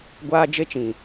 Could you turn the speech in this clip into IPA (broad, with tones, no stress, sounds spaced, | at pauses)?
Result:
ɡʷ aː˦ d͡ʒ e˦ t͡ʃ ĩ˨